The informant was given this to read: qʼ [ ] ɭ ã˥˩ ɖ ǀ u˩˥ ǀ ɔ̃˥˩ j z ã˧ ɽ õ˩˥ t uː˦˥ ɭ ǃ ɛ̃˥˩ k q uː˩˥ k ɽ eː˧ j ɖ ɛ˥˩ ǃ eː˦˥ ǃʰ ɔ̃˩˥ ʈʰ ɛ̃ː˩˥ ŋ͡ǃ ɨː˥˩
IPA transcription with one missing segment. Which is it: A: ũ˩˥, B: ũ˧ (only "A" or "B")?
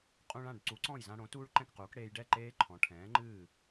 B